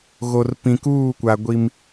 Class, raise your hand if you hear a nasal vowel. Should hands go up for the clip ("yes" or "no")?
yes